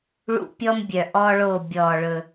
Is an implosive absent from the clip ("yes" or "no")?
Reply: yes